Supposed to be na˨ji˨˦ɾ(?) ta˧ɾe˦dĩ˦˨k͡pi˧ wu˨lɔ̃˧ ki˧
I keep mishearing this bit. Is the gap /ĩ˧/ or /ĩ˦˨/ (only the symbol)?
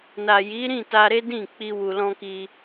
ĩ˦˨